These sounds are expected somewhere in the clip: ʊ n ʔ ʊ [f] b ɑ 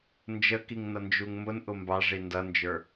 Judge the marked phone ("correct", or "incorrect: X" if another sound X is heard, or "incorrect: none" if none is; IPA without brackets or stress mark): incorrect: m